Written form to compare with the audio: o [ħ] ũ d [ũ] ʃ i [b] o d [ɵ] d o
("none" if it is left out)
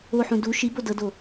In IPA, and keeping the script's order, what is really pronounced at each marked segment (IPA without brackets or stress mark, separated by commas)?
ħ, u, b, ɤ